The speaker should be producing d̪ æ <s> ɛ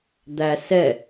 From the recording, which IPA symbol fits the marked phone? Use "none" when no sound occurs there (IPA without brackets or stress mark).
s